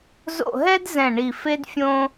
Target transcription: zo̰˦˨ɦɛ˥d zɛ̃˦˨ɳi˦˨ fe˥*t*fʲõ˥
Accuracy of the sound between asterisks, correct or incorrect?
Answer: incorrect